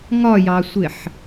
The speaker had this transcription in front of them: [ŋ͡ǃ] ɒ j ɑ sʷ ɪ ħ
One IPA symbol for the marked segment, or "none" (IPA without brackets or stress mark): ŋ